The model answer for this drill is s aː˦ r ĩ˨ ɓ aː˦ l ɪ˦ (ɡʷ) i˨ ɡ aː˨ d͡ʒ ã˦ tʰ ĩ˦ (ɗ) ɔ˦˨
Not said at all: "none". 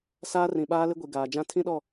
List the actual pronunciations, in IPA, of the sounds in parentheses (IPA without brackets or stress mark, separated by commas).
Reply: ɡʷ, ɗ